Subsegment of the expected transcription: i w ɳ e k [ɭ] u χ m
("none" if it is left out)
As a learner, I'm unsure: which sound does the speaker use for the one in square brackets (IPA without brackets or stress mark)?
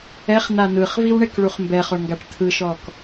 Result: ɭ